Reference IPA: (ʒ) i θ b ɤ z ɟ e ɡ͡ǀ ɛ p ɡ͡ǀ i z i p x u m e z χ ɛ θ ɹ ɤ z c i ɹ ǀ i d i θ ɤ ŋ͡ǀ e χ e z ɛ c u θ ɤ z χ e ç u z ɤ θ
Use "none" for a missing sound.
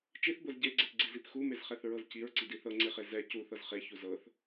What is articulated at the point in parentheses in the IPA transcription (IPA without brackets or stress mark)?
t͡ʃ